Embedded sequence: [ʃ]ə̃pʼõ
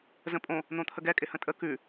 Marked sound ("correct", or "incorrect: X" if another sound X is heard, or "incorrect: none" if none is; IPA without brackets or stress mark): incorrect: z